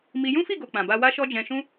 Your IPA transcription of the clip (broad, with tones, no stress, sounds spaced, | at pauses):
m i˧ j ũ˦ f i˦˨ ɡ o˨ k͡p ã˨ b a˧ w a˦ ʃ ɔ˦ d͡ʒ ɛ̃˧ ʃ ũ˦